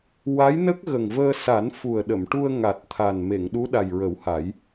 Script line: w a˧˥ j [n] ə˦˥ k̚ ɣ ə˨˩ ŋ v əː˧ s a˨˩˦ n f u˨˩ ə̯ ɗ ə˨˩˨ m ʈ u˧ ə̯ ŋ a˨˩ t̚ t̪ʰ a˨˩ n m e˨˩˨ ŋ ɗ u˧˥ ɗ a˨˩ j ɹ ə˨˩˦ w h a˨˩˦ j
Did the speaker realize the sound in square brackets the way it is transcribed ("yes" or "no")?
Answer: yes